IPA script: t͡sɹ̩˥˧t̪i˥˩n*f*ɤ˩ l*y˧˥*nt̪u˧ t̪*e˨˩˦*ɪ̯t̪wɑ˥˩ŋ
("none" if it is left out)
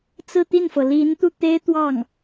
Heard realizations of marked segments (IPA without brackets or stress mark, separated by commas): f, i˧˥, e˥